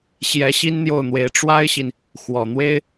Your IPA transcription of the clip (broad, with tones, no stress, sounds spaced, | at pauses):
ɕ j ɛ˧˥ ɕ i˥ n n̪ j o˥˩ ʊ̯ n̪ w e˧˥ ɪ̯ ʈ͡ʂ w a˥ ɪ̯ ɕ i˨ n | x w ɔ˨˩ n̪ w e˥ ɪ̯